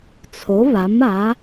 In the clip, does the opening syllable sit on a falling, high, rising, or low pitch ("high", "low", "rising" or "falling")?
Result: rising